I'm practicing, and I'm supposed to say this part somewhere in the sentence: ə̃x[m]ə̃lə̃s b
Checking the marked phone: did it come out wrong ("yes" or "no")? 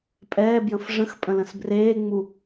yes